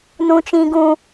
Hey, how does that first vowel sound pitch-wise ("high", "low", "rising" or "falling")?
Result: high